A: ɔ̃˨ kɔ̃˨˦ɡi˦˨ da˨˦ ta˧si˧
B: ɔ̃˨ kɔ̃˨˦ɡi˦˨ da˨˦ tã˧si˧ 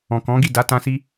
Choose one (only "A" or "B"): B